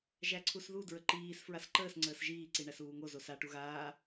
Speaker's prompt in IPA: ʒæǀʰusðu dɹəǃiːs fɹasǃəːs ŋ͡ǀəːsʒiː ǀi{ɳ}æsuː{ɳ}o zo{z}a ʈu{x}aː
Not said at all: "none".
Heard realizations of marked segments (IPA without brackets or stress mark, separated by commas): ɳ, ŋ, s, ɣ